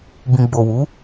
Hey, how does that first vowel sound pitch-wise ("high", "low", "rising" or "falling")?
low